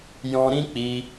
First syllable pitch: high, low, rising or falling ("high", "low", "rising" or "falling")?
high